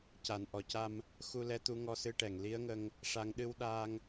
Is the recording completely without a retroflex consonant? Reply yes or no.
no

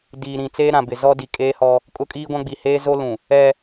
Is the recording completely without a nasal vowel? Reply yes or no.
no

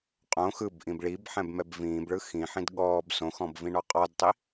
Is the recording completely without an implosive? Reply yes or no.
no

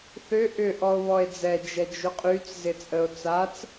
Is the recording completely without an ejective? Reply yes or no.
no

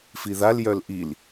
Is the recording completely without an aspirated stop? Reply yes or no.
yes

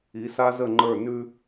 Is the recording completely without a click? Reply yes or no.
no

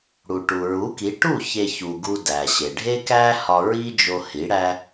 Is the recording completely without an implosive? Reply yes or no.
yes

